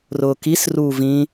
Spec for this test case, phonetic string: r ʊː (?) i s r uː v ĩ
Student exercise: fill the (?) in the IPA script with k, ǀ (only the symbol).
k